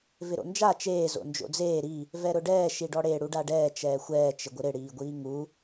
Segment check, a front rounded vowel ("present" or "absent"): absent